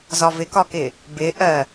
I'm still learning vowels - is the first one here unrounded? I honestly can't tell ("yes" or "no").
no